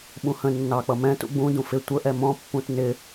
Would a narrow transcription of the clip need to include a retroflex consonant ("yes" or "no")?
no